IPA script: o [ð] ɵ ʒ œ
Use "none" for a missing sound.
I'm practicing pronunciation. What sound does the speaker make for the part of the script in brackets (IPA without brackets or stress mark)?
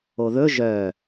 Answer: ð